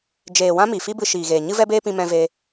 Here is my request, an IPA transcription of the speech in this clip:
d͡ʒ eː˨ w ã˦ m i˨ f i˦ b ɨ˧ ʃ iː˨ ɣ eː˨ ɲ ɨ˦ v ɛ˦ b eː˦ p ĩ˧ m ɛ̃˧ v e˧

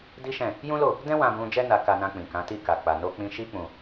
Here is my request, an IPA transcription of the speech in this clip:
d i˦ ʃ ɛ̃˦˨ | j ũ˦ l o˦˨ | d ɛ̃˦ w ã˧ b ũ˧ d͡ʒ ɛ˦ n a˧ k a˧ n ã˧ k͡p ĩ˨ k ã˨˦ t i˦˨ k a˨ k͡p a˨ n o˧ k͡p ĩ˧ ʃ i˦ k͡p ũ˧

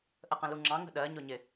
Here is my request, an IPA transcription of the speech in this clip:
ʔ ə q ə̃ l u ŋ͡ǁ ɑ̃ ŋ ə̤ ɗ ɜ ɲ ʊ ɲ ɪ

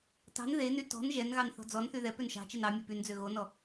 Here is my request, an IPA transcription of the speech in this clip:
t ɑ̤ n ð e n y t ɔ̤ n ʒ ɛ n ɣ ɑ n θ ɔ̤ d͡z ɔ n θ y ð ɛ p ø n ʃ ɑ̤ t͡ʃ e n ɑ mʲ e p y n d͡z ø ɣ o n ɔ

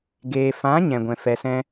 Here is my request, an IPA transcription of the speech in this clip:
ɡ eː˨ f ã˨˦ ɲ ɛ̃˨ ɡʷ ɛ̃˨ f ɛ˨ s ɛ̃˦

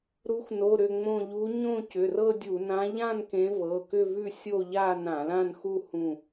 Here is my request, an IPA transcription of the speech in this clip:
ɾ u˨˦ x n o˩˧˩ ɾ ʏ˧˩ ŋ͡m õ˧˩ ʎ u˨˦ ɲ õ˥˧ c ʏ˩˧˩ r ɤ˥˧ dʲ u˧˩˧ n ã˨˦ ʎ ã˥˧ n k ẽ˨˦ v ɤ˩˧˩ k ʏ˥˧ v ʉ˥˧ sʲ o˥˧ ʎ a˥˧ n ã˧˩˧ l ã˥˧ n x u˥˧ h ũ˧˩

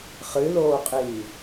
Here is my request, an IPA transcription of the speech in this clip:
χ ɨ l oː qʼ iː

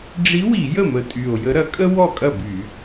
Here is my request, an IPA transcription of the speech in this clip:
ɖ͡ʐ i˧˥ w i˧˩˧ j ə˥˩ m ə˨˩ tʼ y˨˩ o̯ j ə˧˥ ɾ ɐ˧˥ kʼ ə˥ w ɔ˥˩ kʼ ɐ˥˩ b y˧˩˧

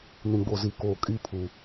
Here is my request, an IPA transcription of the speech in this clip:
n ĩ˨ ɡ͡b o˨ z i˨ k oː˨ kʼ i˦ pʰ u˨

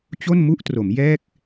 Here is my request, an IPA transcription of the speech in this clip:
t͡ɕ o˥˩ n m u˥˩ ʔ t r o˩˦ m j ɛː˥˩ k̚

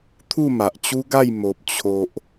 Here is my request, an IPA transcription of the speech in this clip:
t̪ʰ u˥˧ m a˨ ʔ t͡ɕ u˦ ɡ a˥˧ j m o˨ p̚ t͡ɕʰ o˨ ʔ

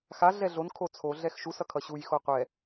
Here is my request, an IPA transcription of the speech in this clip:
x a ɮ ɛ ɮ o n kʰ o t͡sʰ o ɮ ɛ x ʃ u s ʌ kʰ ʌ ɕ u j x o qʷ ɛ

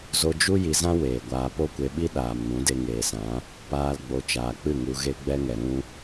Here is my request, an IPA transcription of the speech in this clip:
z o˧ d͡ʒ u˦ j i˧ z ã˦ w eː˨ ɡʷ aː˧ p o˦ kʷ e˧ ɓ i˦ ɗ aː˨ m n ũ˨˦ d e˧ ŋ eː˨ s ã˨˦ | p aː˦ l ɡ͡b o˧ t͡ʃ aː˨ k͡p ɨ˦˨ ŋ u˧ ɣ e˦ ɡ͡b ɛ˦ ŋ ɛ˨ ɾ ũ˦

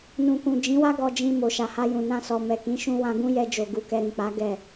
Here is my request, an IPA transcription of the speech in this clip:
n ũ˨ k ũ˨ d͡ʒ ĩ˨˦ w a˦ ɡ ɔ˧ d͡ʒ ĩ˧ m o˨ ʃ a˨ h a˧ j ũ˨ n ã˧ s ɔ˨ m ɛ˨ k ĩ˨˦ ʃ ũ˧ w ã˧ ɡ ũ˦ j ɛ˧ d͡ʒ o˨ ɡ u˧ k ɛ˧ ɾ ĩ˨ k͡p a˨˦ ɡ ɛ˦˨

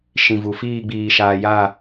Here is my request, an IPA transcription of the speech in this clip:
ʃ ĩ˨ v u˨ f iː˦˨ ɡ͡b iː˨ ʃ aː˨ j a˦˨

